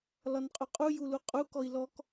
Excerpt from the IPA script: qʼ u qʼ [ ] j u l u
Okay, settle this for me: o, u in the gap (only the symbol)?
u